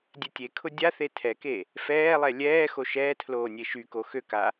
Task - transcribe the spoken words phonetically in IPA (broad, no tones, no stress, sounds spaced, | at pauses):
dʲ ɛ tʲ e kʰ ʊ dʲ a θ e tʰ ɛ k e | f ɛː lˠ ɛ lʲ ɛː x o ʃ ɛː tʰ l oː nʲ e ʃ y k o x ø k a